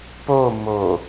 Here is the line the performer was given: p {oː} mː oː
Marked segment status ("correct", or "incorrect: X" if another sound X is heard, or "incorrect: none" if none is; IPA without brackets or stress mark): correct